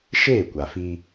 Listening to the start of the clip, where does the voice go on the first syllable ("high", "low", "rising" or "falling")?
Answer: falling